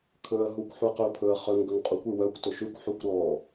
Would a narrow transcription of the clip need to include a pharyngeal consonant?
yes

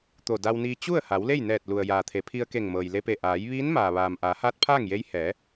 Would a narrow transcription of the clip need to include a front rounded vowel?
no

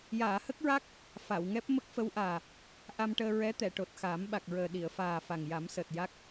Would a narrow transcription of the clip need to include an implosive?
yes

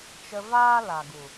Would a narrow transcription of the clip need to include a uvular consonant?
no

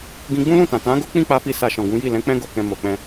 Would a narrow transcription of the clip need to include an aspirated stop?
no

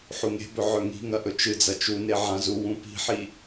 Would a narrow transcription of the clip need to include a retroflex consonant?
no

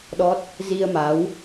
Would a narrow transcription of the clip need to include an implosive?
yes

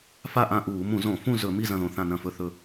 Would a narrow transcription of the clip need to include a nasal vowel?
yes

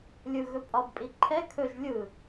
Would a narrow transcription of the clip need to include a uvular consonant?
no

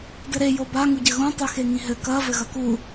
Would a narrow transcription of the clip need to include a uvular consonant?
no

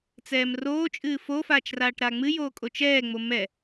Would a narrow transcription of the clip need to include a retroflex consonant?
yes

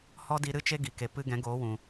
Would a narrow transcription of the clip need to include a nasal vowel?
yes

